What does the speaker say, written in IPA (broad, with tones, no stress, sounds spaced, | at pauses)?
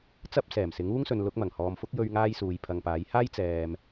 t͡s ɐ˥ p̚ s ɛː˨˩ m s ɪ˨˥ ŋ uː˥ ŋ s ɵ˨ n l ʊ˨˥ k̚ m ɐ˨˩ ŋ h ɔː˨ m f ʊ˥ k̚ j ɵ˧ ɥ ŋ aː˥ j s uː˨ j pʰ ɐ˨ ŋ p aː˨˥ j h aː˥ j t͡s ɛː˨ m